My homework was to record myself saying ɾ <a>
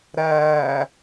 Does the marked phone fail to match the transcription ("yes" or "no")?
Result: yes